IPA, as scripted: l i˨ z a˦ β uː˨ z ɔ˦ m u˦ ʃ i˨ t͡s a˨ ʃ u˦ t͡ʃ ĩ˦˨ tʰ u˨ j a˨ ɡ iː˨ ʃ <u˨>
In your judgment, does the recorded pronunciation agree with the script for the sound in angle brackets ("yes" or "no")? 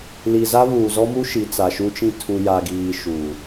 yes